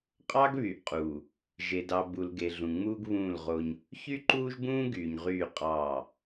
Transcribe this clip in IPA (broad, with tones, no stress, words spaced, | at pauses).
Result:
qʼɑ˦ɡβy˨ʔqʼuː˨ | ʒe˨dɑ˨ bu˨lɡe˨ɮũ˨ŋ͡muː˦ɡ βũː˦˨lʁo˦ɲ | çy˦ǃuː˦ʒbũː˦ ɡyː˨ɲʁyː˦˨qʼɑː˦˨